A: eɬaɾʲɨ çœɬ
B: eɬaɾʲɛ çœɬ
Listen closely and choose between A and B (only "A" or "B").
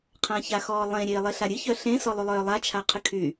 A